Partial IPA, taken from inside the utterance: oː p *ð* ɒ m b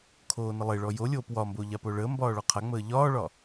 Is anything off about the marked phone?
yes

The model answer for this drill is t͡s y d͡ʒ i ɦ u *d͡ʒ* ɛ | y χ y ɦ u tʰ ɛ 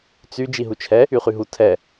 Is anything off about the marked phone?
yes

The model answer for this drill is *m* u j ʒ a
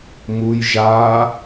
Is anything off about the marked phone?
no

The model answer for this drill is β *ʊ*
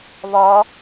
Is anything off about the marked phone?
yes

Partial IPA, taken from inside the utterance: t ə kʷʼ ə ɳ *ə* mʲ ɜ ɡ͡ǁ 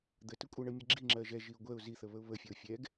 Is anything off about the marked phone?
no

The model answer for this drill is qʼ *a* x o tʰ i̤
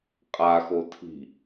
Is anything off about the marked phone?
no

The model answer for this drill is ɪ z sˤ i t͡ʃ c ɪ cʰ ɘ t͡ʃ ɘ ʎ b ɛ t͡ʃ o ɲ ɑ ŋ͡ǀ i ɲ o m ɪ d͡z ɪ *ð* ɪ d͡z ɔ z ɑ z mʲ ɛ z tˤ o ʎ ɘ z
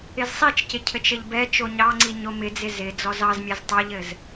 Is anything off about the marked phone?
yes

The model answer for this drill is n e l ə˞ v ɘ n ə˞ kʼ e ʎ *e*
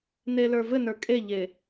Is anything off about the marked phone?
no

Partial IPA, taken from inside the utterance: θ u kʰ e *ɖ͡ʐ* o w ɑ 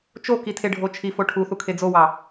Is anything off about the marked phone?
yes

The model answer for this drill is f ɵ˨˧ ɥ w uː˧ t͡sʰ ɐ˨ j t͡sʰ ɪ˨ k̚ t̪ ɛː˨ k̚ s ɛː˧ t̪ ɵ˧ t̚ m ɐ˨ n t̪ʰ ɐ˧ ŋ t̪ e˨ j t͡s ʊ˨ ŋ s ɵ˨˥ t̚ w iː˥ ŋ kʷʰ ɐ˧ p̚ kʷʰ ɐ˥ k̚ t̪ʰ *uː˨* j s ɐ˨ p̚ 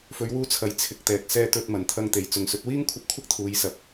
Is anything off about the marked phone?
yes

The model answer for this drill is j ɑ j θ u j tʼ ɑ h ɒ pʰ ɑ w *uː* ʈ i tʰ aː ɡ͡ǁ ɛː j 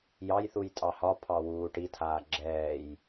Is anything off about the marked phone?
no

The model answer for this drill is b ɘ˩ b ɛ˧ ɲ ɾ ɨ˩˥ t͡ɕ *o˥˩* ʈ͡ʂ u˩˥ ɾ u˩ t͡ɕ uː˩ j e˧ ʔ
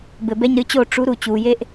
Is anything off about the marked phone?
no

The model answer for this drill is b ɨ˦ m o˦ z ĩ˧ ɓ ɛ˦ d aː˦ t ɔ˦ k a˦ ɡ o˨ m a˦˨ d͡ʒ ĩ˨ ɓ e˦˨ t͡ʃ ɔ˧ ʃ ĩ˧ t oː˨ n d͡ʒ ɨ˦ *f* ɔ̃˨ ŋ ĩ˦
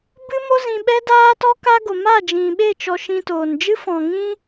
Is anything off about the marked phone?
no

